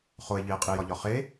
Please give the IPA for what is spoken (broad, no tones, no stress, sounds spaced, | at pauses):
χ o e̯ ʎ i e̯ qʼ i j ɒ ʎ ɒ χ e